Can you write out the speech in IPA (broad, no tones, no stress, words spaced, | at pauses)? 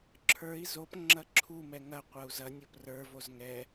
ǁʰə˞i̯ zop ŋ͡ǁɐǁʰumɛ ŋɐqʷɐu̯ zɐnʲo prə˞voz ŋɛ